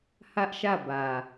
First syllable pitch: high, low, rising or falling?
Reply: high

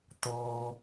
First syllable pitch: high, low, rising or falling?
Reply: low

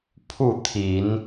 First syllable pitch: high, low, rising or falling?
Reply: falling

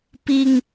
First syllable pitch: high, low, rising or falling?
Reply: high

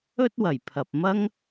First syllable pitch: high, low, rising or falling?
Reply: high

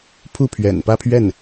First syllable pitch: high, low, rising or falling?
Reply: falling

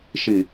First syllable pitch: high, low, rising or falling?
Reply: low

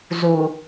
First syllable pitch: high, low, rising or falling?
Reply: low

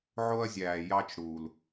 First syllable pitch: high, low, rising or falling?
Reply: high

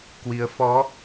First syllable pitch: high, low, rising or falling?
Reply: rising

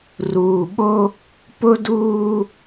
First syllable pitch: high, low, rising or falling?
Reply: low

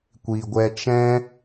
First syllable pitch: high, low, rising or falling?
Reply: low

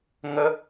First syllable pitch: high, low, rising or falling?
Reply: high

